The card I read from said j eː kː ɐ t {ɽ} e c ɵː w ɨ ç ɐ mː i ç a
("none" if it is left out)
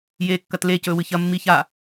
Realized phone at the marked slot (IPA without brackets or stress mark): l